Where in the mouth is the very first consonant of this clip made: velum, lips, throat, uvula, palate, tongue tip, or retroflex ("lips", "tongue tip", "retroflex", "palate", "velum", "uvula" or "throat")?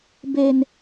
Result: lips